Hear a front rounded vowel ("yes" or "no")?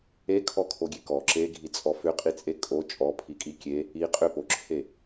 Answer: yes